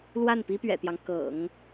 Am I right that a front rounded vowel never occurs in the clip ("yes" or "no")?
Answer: yes